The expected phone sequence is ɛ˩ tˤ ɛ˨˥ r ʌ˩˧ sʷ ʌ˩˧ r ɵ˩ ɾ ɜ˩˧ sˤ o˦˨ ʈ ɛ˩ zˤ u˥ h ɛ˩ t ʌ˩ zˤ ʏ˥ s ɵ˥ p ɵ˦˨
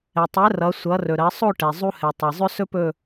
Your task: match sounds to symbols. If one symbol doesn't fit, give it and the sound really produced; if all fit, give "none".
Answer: t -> tˤ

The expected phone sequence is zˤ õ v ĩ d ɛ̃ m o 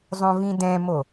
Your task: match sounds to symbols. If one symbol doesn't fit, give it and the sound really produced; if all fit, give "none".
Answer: none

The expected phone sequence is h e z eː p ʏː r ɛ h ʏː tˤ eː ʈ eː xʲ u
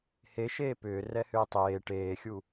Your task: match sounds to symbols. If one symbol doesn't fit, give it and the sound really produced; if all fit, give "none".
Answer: z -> ʃ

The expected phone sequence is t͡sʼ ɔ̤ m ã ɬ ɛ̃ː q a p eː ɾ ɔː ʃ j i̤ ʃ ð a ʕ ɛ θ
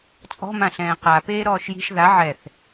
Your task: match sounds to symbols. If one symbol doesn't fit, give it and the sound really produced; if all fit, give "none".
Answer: none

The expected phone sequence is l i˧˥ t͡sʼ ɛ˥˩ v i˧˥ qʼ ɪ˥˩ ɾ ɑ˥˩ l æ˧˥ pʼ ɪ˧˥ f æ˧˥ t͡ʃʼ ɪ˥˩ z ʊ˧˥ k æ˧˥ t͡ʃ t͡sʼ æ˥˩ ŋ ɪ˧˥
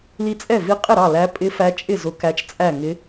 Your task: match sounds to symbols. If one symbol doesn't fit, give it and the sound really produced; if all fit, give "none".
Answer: none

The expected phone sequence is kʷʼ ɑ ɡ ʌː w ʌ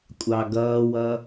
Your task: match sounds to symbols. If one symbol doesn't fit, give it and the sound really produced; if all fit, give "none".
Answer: none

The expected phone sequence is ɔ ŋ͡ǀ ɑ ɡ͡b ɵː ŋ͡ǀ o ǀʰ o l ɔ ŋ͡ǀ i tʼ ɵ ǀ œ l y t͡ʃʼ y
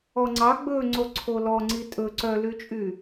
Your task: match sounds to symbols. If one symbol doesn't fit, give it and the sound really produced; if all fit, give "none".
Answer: none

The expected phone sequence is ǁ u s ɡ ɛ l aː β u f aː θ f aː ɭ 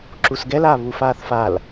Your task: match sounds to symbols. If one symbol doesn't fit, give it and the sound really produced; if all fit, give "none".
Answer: ɭ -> l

